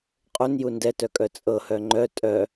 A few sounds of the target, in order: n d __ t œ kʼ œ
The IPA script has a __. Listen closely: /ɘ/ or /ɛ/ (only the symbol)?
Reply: ɛ